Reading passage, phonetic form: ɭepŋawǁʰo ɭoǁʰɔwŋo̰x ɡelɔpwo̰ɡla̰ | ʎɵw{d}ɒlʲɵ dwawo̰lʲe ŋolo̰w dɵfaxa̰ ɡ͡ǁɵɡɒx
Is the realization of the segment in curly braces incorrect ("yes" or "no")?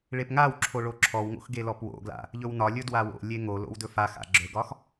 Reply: yes